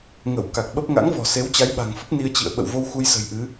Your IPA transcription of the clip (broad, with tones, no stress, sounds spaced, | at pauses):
ŋ ə˧˩ w k a˨˩ k̚ ɓ ə˦˥ p̚ ŋ a̰˧˥ ŋ v ɔ̤˨˩ s e˨˦ w t͡ɕ a˨˦ j ɓ a̤˨˩ ŋ f ə˦˥ p̚ n i˧ ə̯ t͡ɕ ḭ˧˨ ə̯ ɓ ə̰˧˨ w v o˧ w x u˧ j s ə̤˨˩ j ʔ ɨ˨˦